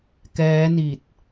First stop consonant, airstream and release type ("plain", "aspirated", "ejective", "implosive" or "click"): plain